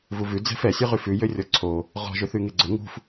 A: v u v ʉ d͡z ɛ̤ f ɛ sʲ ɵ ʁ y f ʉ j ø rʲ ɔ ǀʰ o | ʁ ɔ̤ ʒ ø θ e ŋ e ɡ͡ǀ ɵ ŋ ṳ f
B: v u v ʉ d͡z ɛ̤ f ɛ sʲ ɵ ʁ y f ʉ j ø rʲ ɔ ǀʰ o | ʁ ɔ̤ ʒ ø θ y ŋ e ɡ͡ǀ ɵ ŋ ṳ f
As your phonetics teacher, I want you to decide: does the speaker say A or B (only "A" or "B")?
B